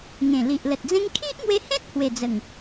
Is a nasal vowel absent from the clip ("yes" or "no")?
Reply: no